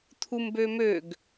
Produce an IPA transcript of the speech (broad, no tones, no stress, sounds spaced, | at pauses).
t̪ʰ u m b ø m ø ɡ